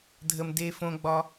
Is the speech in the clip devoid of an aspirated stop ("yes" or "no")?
yes